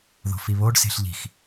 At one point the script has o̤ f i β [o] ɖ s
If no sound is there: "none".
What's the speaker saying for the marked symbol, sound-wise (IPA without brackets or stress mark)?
o